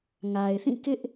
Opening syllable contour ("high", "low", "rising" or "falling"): low